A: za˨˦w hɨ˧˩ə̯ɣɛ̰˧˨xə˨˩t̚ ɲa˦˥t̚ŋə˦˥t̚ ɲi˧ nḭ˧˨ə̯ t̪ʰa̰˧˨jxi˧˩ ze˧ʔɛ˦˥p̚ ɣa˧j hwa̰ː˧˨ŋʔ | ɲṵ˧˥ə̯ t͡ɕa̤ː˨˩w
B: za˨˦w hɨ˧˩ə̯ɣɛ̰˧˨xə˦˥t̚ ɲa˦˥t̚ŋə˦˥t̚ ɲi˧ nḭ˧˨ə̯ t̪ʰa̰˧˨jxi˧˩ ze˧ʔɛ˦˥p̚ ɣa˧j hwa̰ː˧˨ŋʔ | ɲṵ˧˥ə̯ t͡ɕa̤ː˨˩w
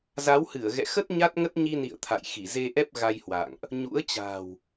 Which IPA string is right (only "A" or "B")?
B